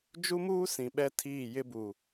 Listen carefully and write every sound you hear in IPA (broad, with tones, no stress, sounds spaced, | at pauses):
d͡ʒ u˦ m uː˦ s ĩ˨ ɓ ɛ˦ tʰ iː˦˨ j ɪ˦ b u˨